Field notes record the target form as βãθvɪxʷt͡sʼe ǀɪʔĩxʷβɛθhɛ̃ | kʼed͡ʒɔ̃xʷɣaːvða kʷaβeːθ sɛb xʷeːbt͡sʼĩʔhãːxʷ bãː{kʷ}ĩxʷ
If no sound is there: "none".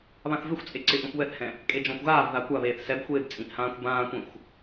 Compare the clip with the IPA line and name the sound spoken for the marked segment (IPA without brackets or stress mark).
kʷ